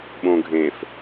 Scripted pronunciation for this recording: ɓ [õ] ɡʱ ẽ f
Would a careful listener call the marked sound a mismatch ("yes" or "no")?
no